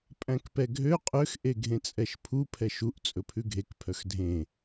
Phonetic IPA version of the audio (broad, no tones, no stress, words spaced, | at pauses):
pʼæ̃kpɛɡʱø qʼøx ʔeɡʱẽt͡sʼɛʃpʰu pʰɛʃuʔ t͡sʼɵpʰʉɡʱek pʰœxdʱẽ